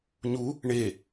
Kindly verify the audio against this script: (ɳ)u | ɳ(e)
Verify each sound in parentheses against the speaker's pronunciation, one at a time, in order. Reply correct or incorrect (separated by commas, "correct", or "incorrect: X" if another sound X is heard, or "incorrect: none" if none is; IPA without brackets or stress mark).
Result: incorrect: ɲ, correct